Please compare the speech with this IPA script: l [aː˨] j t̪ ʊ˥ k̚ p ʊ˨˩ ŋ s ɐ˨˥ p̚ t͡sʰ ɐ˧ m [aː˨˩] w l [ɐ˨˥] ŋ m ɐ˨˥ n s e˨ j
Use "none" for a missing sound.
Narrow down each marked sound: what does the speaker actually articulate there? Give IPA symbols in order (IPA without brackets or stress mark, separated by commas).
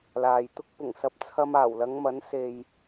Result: aː˨, aː˨˩, ɐ˨˧